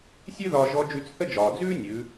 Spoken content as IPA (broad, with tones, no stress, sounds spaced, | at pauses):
sʲ ʉ˥ ð ɒː˧ ʒ ɔ˧˥ d͡ʒ ʉ˧ t͡s θ ə˥ d͡ʒ ɒː˩ d͡z ʉː˥ nʲ ʉ˩˧